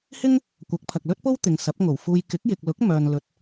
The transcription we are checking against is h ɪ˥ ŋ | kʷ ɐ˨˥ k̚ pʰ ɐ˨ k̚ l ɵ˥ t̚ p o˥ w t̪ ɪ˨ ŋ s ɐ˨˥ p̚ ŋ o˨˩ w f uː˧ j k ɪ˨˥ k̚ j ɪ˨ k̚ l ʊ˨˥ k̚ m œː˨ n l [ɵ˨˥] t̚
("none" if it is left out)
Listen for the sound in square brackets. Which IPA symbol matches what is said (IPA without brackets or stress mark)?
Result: ɵ˨˥